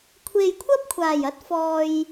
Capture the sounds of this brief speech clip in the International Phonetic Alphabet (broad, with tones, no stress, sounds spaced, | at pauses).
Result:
kʷʰ e˨ j kʷʰ ɐ˥ p̚ kʷʰ aː˨˩ j ɐ˥ t̚ f ɔː˧ j